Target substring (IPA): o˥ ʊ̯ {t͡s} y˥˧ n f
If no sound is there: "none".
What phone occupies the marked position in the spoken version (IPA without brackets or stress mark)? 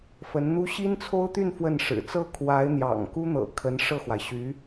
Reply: t̪